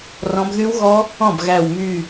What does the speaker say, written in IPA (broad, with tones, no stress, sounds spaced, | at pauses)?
r ɔ̃˨˦ b ð y˦˥ w ɣ ɔ˦˥ | ɔ̃˥˩ b ɣ æ˧˩ w m y˧˩